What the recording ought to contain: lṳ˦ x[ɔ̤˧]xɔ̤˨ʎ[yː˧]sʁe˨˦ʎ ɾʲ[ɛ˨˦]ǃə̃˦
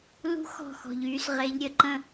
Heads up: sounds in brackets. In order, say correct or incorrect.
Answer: incorrect: ɔ̤˦˨, correct, incorrect: ə˨˦

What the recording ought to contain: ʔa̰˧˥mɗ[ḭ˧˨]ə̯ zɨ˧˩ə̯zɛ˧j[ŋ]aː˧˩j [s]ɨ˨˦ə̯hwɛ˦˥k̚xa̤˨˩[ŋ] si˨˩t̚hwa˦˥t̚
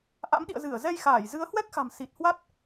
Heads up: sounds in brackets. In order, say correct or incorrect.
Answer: correct, incorrect: x, incorrect: z, incorrect: m

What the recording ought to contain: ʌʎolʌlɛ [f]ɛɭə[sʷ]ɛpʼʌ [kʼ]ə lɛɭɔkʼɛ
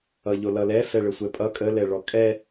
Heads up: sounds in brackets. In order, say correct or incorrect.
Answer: correct, correct, correct

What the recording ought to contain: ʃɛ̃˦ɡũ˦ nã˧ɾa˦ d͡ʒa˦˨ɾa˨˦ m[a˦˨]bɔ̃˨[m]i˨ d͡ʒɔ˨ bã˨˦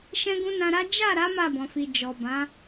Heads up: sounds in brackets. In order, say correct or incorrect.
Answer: correct, incorrect: f

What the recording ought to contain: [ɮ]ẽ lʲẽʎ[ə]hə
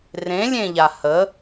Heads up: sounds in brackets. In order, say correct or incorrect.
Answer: incorrect: r, incorrect: a

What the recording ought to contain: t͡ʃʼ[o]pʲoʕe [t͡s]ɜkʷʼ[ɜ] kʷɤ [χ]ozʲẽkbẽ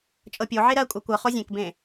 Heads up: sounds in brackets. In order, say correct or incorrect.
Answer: incorrect: ɤ, incorrect: ɾ, correct, correct

